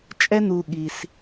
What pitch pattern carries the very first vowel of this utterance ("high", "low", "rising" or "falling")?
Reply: high